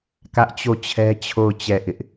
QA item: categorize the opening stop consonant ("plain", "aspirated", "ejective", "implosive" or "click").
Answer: plain